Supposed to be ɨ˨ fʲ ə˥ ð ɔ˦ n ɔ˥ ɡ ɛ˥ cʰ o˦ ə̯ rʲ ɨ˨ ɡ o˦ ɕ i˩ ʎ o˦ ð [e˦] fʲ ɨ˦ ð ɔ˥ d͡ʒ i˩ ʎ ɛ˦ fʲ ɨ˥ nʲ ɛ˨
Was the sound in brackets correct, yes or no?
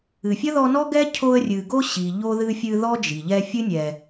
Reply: no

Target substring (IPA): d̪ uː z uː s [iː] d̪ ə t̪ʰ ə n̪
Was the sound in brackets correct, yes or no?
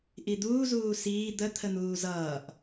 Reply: yes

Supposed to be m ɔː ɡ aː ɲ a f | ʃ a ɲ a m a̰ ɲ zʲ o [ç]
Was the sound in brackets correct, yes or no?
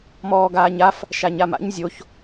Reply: yes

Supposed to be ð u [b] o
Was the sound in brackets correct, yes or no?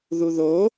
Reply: no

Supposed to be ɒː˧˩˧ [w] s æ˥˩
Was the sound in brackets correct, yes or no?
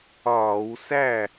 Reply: yes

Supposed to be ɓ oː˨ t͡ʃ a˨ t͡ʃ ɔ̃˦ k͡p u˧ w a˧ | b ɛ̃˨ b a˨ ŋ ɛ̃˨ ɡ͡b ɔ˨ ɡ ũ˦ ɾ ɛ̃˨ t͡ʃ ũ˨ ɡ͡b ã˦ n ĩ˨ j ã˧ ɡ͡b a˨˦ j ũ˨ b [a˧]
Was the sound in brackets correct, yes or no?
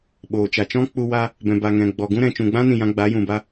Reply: yes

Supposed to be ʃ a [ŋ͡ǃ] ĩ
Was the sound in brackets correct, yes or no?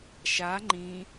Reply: yes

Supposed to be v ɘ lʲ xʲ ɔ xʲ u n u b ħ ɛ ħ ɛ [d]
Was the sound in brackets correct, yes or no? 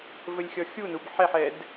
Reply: yes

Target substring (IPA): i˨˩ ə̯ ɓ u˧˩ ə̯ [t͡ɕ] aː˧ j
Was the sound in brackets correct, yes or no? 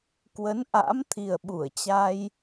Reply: yes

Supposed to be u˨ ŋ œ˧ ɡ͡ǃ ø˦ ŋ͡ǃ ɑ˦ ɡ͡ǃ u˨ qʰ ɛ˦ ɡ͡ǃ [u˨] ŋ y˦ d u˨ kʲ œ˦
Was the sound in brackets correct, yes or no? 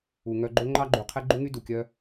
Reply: no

